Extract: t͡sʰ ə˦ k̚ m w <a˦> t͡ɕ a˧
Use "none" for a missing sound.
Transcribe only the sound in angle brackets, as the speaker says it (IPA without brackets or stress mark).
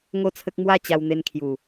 a˥˧